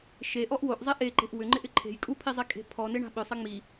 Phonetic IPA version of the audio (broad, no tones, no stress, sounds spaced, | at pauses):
ʃ e ʔ ɔ ʔ w o ʔ zˤ e ʔ e ǃ e̤ ʔ w ʏ ŋ͡ǃ ɪ ʔ ɪ ǃʰ e̤ j kʼ u pʰ i zˤ e kʼ e̤ pʰ ɔ n ɪ ɳ a̤ ɓ ʏ sˤ ɪ ŋ͡m i